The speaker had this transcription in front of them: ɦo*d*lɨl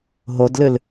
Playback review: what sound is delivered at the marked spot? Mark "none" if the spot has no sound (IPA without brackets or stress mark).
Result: d